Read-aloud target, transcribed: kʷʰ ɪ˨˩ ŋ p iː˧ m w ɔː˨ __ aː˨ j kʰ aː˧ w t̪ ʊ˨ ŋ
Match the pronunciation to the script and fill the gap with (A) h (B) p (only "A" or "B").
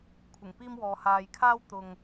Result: A